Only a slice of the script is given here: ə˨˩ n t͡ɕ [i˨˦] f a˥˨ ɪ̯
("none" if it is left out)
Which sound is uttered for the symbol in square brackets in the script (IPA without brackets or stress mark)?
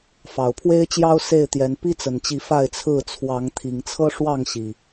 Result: i˨˦